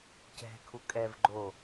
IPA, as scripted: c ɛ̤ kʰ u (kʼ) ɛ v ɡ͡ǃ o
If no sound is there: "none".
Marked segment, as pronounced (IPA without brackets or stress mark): kʼ